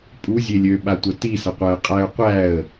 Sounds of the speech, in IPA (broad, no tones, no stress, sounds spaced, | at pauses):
pʼ u zʲ e lʲ ø ɓ a tʷ ɐ t i s ɐ qʷ æ ə̯ qʼ æ ʊ̯ qʷ æ ə̯